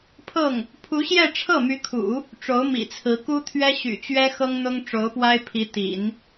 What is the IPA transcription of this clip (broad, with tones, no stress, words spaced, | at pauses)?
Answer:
pʰɤ˥˩ŋ | pʰu˧˥ɕjɛ˥˧ ʈ͡ʂʰɤ˥˩my˧˥kʰṵ˨˩˦ | ʈ͡ʂo˧˥ʊ̯mḭ˨˩t͡sʰɹ̩˧˥ ku˥t̪ʰɥɛ˥ɕy̰˨˩t͡ɕɥɛ˥ xɤ˥ŋn̪ʊ˥ŋ ʈ͡ʂo˧˥ʊ̯pwa˥ɪ̯ pʰi˧˥t̪ḭ˨˩˦n